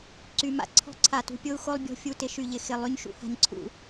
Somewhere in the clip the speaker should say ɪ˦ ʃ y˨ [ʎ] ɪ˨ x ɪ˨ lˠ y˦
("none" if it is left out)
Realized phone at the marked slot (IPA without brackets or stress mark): ʎ